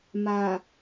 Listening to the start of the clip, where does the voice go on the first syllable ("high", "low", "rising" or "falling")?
low